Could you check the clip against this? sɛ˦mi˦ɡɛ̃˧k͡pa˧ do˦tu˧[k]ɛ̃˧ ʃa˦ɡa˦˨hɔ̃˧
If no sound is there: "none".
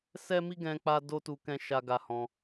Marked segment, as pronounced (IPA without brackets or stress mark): k